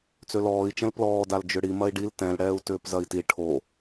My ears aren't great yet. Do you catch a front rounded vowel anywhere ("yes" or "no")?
yes